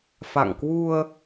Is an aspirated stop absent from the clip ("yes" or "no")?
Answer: yes